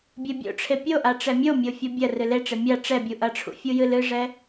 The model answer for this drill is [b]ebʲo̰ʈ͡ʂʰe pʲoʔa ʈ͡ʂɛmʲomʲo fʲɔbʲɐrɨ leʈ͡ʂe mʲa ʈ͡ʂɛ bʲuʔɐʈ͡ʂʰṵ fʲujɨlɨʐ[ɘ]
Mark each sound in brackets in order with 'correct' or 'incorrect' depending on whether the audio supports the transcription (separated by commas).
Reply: incorrect, incorrect